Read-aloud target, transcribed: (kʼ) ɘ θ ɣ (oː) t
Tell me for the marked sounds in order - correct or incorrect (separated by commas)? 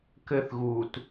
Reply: incorrect, incorrect